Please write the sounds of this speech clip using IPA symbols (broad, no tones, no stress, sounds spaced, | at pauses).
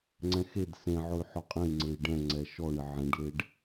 ŋ͡ǀ ɛ̃ x e d s ẽ ʕ ʊ y̯ ħ ɔ qʼ ẽ i̯ ŋ͡ǀ e i̯ ɖ ɛ̃ ŋ͡ǀ ɛ ʃ ɔ ɳ ɪ ʕ ẽ ɖ l e ɖ